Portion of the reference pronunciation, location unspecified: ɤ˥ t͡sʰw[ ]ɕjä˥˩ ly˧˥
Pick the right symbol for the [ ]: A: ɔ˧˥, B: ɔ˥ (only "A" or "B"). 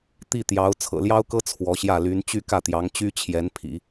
A